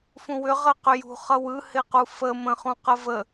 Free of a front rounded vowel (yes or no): no